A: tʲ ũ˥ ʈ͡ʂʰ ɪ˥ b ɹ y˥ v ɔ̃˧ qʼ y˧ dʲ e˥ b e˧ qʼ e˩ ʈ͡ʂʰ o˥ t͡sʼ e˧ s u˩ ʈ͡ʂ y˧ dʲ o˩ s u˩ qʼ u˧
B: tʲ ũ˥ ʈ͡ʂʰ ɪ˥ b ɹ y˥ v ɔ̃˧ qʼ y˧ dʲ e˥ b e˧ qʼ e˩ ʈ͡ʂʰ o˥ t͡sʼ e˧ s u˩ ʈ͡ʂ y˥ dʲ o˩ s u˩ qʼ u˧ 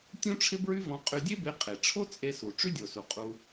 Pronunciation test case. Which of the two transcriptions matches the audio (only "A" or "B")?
B